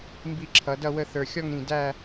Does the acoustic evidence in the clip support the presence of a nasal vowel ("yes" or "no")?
yes